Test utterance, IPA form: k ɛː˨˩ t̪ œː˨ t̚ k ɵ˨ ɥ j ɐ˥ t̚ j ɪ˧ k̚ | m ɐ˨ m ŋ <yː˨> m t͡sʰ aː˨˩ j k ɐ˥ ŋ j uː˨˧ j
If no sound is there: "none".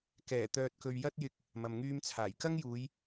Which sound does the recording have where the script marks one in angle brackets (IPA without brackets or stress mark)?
yː˧